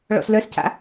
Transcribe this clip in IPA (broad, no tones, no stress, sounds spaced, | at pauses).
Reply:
ɭ ɔ̰ s l œ s c a̰